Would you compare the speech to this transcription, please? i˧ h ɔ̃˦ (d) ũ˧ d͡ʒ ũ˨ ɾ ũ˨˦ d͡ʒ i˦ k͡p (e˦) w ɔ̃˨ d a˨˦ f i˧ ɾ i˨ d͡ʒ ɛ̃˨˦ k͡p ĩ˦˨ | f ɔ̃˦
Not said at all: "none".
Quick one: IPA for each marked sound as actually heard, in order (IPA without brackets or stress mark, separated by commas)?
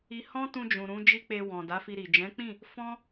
t, e˧